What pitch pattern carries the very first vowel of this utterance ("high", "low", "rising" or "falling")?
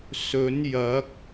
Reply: rising